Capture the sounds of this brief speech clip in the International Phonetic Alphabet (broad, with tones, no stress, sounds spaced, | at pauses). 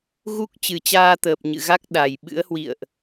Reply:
ɣ u˦˥ k̚ t͡ɕ ɨ˨˩ t͡ɕ aː˧ t̪ əː˨˩ p̚ ɲ ɨ̰˧˨ ɣ a˦˥ k̚ ɗ a˨˩ j ɓ ɨ̰˧˥ ə̯ h w ḭ˧˨ ə̯ ʔ